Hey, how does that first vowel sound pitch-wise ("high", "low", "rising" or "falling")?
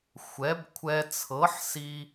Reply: rising